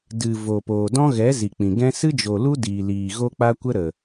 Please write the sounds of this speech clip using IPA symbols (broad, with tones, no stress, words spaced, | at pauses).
dɨ˨ vo˨poː˨ dɔ̃˦ɣɛ˨˦ zi˨k͡pĩ˨ ɡɛ̃˧sɨ˦d͡ʒo˨ lu˦ diː˨liː˨ ɣo˧k͡pa˧kʷə˧ ɾə˨